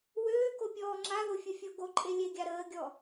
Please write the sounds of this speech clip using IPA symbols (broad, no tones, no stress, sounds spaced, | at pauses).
w øː k o pʲ ɔː ŋ͡ǁ a ð o fʲ ə fʲ o ɡ o ǃʼ e lʲ e ɡʲ a ɾ əː ɡʲ ɔ